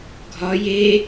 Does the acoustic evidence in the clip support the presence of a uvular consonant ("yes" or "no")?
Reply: no